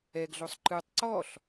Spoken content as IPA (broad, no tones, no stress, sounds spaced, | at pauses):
ɛ ɡ ɮ o sˤ ǃ ɯ tˤ ǀ ɔ ɬ